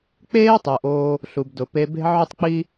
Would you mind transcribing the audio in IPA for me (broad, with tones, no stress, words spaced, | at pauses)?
k͡peː˥tˤʊː˩ʔ oː˧ | ɬu˩bdʊ˩pe˧be̤˥ ʕʊ˥tˤk͡pi˥